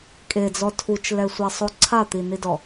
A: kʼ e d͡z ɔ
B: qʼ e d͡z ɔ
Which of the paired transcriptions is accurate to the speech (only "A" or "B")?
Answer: A